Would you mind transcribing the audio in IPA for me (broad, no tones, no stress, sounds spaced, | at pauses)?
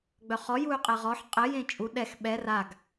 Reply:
ɡ͡b œ χ ɔ j u y̯ qʼ ɛ ʁ ɔ ħ qʼ ɘ j ẽ t͡ʃʼ u ɗ ɛ x ɓ ɛ r a ɡ